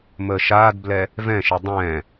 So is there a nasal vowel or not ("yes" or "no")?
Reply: yes